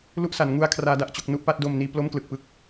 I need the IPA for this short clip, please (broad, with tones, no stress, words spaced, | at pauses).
lu˦˥ʔsa˩˦n ŋu˦˥a̯kʰraː˦˥ da˦˥ʔt͡ɕo˦˥k̚ nu˥˩ʔpa˦˥t̚do˧mniː˧ plo˥˩mklɯ˨˩k̚pɯ˦˥k̚